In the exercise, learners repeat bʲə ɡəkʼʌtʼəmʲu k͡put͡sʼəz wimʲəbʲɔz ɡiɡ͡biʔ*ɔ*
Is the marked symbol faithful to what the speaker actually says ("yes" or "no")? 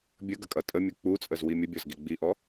yes